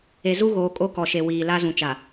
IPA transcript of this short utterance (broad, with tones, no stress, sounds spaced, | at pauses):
e˨ z u˦ ɣ oː˨ kʼ o˦ k ɔ˨ ʃ e˨ w iː˨ l a˦ z ũ˨ t͡ʃ a˨